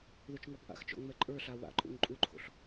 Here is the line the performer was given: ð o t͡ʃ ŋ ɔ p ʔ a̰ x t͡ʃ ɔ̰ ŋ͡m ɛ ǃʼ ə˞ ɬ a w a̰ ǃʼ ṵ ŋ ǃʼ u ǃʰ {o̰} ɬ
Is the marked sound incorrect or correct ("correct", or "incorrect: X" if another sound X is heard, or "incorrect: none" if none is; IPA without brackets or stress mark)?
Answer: correct